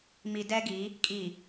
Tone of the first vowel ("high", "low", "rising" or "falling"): low